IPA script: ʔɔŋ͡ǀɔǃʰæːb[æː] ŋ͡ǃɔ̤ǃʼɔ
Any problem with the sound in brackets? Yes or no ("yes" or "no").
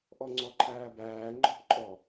no